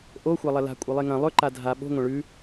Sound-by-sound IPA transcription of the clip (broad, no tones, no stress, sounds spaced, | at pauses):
ʔ o xʷ a lˠ ɐ l a̤ kʷʼ ɐ lˠ e ŋ ɐ̃ lˠ ɵ ǃ a dʱ a ɓ o̤ ŋʷ ɐ̃ ɭ ʉ